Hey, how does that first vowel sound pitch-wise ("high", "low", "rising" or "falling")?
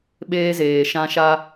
high